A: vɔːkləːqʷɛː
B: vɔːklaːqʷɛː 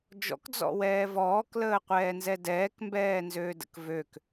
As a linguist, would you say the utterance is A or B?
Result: A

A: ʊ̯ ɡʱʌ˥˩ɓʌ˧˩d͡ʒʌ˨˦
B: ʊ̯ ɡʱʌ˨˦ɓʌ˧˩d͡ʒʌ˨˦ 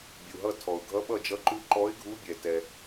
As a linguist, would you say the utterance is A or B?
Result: B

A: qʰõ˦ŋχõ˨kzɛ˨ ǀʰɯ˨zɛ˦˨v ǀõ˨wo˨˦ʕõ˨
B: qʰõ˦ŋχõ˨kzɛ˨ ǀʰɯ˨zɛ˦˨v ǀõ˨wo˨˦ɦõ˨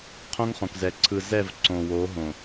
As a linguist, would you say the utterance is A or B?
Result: B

